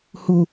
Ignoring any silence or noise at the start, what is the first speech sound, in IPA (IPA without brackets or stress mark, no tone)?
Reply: h